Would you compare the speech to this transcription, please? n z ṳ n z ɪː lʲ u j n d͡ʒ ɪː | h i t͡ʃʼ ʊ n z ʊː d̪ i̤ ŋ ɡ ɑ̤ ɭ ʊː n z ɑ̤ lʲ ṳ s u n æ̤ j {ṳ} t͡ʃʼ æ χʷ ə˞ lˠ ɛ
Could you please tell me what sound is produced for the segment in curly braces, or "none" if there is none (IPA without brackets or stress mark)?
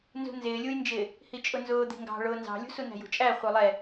ṳ